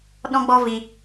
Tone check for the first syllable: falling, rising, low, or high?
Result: high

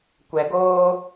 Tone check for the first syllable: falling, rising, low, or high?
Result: low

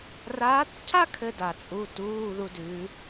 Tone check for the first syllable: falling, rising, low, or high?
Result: rising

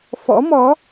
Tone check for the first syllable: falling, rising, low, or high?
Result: rising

